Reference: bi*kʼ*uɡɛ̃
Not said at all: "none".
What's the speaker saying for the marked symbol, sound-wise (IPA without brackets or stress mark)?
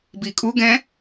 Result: kʼ